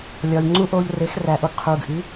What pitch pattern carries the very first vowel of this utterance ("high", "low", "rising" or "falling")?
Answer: low